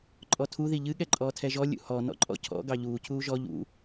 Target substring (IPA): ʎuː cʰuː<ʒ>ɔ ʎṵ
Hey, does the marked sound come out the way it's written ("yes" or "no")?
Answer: yes